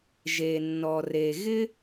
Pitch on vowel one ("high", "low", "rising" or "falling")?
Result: low